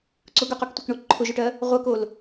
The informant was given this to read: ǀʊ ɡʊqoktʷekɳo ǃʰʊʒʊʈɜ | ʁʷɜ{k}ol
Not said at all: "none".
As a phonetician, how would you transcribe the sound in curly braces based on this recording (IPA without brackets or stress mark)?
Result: k